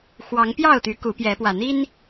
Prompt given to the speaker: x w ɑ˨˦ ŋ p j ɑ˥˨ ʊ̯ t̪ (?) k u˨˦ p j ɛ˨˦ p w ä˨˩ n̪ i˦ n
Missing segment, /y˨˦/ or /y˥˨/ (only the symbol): y˨˦